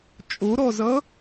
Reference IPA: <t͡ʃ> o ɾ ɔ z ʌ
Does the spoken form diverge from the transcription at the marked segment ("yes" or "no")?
yes